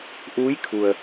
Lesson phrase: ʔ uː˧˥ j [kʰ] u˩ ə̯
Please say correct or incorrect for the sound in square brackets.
correct